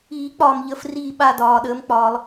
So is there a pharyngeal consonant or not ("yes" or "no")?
no